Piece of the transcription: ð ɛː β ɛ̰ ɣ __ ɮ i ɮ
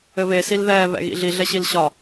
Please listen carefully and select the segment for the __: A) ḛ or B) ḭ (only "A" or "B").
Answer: B